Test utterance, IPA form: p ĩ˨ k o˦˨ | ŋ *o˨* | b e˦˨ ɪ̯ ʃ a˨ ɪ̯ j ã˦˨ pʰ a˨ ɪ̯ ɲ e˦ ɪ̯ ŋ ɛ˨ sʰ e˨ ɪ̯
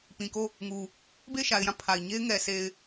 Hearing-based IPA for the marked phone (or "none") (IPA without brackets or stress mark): u˨